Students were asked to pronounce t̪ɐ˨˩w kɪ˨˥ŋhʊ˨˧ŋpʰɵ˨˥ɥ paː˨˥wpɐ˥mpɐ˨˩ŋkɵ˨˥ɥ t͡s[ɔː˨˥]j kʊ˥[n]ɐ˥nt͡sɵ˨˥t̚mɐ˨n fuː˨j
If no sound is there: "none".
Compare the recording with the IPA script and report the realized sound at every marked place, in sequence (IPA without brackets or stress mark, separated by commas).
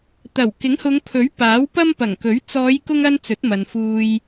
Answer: ɔː˨˧, ŋ